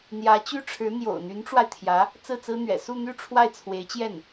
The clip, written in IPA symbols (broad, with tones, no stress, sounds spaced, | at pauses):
n̪ j ä˧˥ t͡ɕ y˥ ʈ͡ʂʰ ɻ̩˧˥ n̪ j o̰˨˩ ʊ̯ n̪ y˧˥ n ʈ͡ʂ w a˧ ɪ̯ t̪ʰ j ä˧˥ | t͡s ɹ̩˥˩ t͡s ɹ̩˥ n̪ ɥ ɛ̰˨˩ s u˥˧ n̪ y˥˧ ʈ͡ʂʰ w a˥˩ ɪ̯ t͡sʰ w e˧˥ ɪ̯ t͡ɕ j ɛ˥˩ n